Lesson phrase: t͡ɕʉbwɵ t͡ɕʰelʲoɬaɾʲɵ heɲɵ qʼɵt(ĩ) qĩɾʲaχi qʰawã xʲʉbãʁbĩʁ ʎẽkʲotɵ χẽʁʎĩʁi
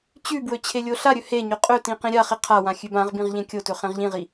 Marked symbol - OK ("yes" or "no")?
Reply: yes